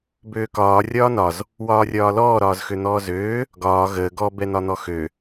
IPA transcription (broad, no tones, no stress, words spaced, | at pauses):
bøːkɒː rʲɒːnɒz | wɒːrʲɒːlɔː ɾɒːzxøn̪ɔːzøː | ɡɒː ɣəː ɡɔ bɛn̪ɒn̪ɔxø